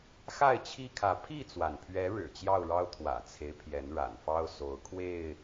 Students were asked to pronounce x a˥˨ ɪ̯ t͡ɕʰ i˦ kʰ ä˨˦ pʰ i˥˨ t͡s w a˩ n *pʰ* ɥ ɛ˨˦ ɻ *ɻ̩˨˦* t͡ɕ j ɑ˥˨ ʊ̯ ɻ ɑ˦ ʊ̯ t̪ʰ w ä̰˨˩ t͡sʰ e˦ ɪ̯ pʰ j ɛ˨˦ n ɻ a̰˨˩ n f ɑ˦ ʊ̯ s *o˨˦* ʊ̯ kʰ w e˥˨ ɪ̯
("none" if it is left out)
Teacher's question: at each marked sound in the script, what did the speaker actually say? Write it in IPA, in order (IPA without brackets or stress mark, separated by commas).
pʰ, ɻ̩˨˩, o˨˦